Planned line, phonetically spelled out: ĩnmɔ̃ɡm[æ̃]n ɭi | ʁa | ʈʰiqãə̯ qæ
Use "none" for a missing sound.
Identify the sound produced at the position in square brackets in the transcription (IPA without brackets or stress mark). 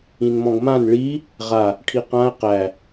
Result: ã